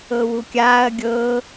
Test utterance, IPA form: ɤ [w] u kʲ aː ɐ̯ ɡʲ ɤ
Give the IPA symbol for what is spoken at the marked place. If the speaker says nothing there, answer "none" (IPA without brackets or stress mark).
w